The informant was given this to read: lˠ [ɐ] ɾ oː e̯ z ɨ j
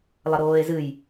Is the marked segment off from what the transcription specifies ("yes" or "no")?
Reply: no